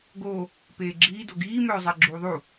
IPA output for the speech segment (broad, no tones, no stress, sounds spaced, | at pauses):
ɡ o | p eː ɡ͡ǁ iː d o ɡ iː m œː zˤ ɛ ɡ͡ǁ uː ðˤ u